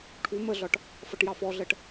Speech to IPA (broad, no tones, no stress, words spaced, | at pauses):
ʈʰu məɮɒʈ | fʌʈjɑfɔɮɜʈ